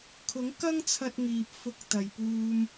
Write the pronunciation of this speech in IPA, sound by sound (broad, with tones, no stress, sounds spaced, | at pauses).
kʰ ʊ˨˥ ŋ k ɐ˥ ŋ t͡sʰ ɐ˧ t̚ ŋ iː˨ p̚ f ʊ˧ k̚ t̪ ɐ˨ j p uː˧ m